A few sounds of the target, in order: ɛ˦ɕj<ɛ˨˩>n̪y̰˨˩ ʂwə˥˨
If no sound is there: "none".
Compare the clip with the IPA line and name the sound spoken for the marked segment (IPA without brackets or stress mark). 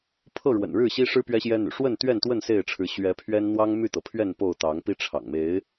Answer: ɛ˦